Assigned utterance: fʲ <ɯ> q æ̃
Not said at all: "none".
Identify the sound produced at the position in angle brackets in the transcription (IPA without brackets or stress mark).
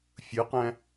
ɯ